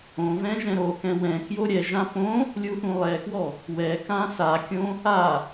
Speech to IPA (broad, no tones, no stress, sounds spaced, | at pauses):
õ v ɛ̃ ʒ ɛ̃ ɾ o k ɛ̃ w ɛ̃ k j o ɾʲ ɛ ʒ ã p õ | lʲ u θ ũ lˠ ɛ k w ɔ | w ɛ k ã s a kʲ õ | a